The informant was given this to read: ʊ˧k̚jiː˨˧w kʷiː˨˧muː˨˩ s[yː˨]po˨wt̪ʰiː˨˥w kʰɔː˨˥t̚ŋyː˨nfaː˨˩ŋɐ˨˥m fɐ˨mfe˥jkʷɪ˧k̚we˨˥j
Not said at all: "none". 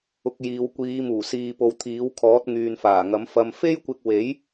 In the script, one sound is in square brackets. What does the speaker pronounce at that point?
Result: iː˨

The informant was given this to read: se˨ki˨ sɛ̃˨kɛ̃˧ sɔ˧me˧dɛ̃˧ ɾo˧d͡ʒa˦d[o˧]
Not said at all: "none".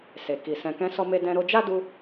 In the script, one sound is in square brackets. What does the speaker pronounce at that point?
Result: u˧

